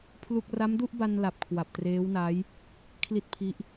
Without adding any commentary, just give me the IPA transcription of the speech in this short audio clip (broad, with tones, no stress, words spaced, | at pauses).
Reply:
pʰlu˥˩k̚ ra˦˥mdu˥˩ʔba˧nla˨˩p̚ kʰwa˨˩p̚treː˦˥wna˦˥j | kʰli˦˥t̚pʰi˦˥ʔ